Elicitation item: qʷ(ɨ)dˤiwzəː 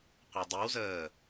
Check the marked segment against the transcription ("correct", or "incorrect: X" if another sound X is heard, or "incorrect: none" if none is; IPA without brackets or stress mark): incorrect: e